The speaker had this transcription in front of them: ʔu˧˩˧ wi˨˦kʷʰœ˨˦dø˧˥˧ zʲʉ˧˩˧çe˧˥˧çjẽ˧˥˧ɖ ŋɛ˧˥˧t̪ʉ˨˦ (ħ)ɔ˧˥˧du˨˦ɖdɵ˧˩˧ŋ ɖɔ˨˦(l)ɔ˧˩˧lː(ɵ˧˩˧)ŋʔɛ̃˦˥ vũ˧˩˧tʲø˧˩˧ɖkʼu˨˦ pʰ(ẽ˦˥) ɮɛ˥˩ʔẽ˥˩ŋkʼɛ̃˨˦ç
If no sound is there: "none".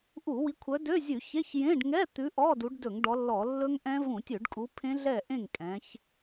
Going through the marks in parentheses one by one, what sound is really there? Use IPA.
ʔ, lː, ɵ˦˥, ẽ˦˥

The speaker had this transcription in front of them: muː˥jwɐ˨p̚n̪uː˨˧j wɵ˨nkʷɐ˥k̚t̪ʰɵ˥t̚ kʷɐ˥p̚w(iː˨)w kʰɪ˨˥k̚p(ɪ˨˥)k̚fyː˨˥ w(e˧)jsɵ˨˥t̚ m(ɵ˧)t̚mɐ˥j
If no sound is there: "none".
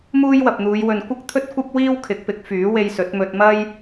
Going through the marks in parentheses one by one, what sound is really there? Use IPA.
iː˥, ɪ˨˥, e˧, ɵ˧

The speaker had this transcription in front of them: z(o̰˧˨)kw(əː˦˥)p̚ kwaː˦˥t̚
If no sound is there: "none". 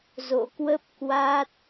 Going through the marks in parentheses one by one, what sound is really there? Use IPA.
o̰˧˨, ə˦˥

